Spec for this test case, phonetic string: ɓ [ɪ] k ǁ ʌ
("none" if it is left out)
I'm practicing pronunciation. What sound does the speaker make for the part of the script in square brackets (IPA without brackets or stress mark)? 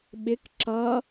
ɪ